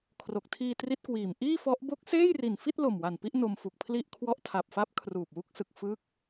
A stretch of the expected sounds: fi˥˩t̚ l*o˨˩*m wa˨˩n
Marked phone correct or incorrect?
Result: correct